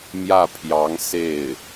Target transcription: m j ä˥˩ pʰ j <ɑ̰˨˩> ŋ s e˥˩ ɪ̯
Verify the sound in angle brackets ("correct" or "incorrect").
incorrect